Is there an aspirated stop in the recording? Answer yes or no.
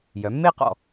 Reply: no